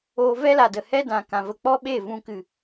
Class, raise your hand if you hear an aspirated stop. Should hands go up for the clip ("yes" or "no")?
no